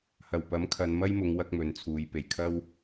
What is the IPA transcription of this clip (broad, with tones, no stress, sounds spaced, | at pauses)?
h ɐ˨˩ w p ɐ˨˥ m kʰ ɐ˨˧ n m ɐ˥ j m ʊ˨˧ ŋ w ɐ˥ k̚ m ɵ˨˧ n t͡sʰ uː˨˧ j p e˨˩ j kʰ ɐ˥ w